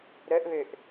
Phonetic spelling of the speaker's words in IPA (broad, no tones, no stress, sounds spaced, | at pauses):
ɾ œ ʔ β ø ʔ